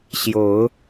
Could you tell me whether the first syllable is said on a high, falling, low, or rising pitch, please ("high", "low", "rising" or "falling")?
rising